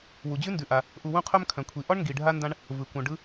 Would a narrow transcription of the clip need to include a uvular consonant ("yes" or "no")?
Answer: yes